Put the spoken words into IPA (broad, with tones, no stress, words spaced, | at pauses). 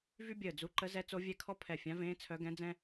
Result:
vy˥bʲəː˧˩d͡zu˧˥ ǃə˧˥zɛ˧˥ t͡so˧˥vʲɛ˧˥kʰɔ˥ pʰɛ˧˩fʲã˧˥vẽː˧˥ t͡sʰœ˧˥ɡɛ̃˧˥d͡zɛ̃˥